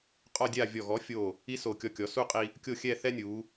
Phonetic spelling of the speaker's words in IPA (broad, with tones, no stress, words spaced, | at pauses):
qʼɔ˥˧dʲa˥˧ vʲɔ˧˩ɣɔ˨˥fʲo˧˩ | i˥so˧˩ kʲɔ˧kʲɔ˩˧su˥˧qʼi˧ | kʲo˥˧xʲɛ˥˧θɛ˥nʲu˩˧